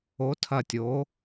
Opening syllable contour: rising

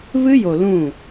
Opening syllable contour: high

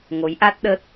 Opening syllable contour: rising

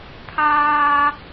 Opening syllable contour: high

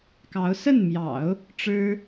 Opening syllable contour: rising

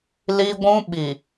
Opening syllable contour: high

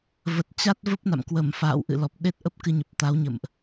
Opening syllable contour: low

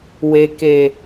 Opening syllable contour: low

